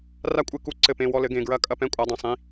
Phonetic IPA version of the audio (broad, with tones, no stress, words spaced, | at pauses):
ra˦kʷʼɨ˧˩˧ ku˨˦ǀɘ˧˩˧pẽ˩˧˩ wɔ˦˨lɘ˨˦ɡẽ˩˧˩ ɡɹɐ˧˩˧ kʼɐ˦˨pɛ̃˦˨ kʷʼa˨˦dˤɛ̃˩˧˩sˤĩ˩˧˩